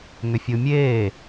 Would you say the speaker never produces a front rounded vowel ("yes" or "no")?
no